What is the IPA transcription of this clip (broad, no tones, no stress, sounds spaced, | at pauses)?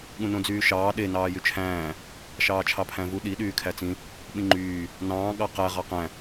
ɠ ũ n õ d͡z yː ʃ ɑː ɗ e n ɑː j y t͡ʃʰ æ̃ː | ʃ ɑː t͡ʃʰ ɑ pʰ æ̃ v u ɗ i ɗ yː kʰ æ t͡s ĩ | ɓ ĩ ŋ͡ǃ yː | n ɑ̃ː ɠ ɑ q æ ʁ ɑ q æ̃